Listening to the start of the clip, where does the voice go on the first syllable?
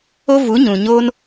high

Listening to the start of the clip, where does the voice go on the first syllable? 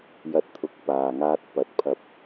rising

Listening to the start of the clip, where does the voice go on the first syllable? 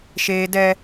high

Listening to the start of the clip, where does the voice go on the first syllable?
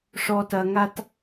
low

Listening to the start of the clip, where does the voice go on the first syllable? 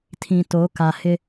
low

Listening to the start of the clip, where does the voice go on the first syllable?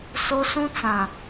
high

